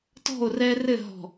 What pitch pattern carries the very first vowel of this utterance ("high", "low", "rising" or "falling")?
falling